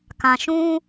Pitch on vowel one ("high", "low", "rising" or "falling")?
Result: low